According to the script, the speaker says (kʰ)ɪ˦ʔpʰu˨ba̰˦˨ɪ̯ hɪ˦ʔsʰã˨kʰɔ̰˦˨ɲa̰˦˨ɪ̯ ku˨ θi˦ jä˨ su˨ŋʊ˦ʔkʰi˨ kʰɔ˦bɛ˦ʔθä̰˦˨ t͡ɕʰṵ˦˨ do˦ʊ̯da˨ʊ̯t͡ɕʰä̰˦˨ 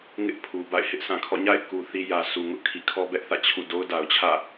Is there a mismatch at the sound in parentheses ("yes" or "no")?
yes